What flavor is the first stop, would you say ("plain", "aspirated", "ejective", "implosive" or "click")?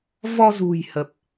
plain